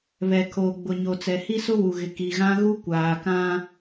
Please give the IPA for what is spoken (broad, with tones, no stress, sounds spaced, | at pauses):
β ɛ˨ kʰ oː˨ ɡ͡b ʊ˨ ɲ o˨ t͡s ɛ˨ h i˦ s ʊ˦ w u˨ ɣ ɪ˨ k i˨ ɣ ã˦ ɣ u˦ kʷ aː˨ k ã˦